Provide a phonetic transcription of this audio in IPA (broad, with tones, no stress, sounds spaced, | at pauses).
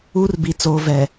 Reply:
uː˦ r b i˨ t͡s oː˨ v ɛ˨